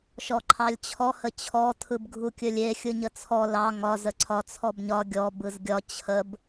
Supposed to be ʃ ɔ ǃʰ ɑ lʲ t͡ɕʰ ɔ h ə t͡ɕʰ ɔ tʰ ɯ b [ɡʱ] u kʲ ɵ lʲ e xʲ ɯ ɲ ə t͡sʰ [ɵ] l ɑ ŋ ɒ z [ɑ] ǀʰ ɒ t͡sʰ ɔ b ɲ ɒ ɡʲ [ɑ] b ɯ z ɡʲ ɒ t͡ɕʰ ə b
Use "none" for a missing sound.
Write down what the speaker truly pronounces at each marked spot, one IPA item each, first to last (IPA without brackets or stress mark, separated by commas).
ɡʱ, ɔ, ə, ɔ